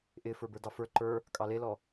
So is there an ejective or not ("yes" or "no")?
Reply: yes